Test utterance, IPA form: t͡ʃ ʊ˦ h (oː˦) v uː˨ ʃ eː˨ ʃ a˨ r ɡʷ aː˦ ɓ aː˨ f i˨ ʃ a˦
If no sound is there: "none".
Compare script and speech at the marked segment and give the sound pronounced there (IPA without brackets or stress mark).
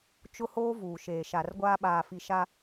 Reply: oː˦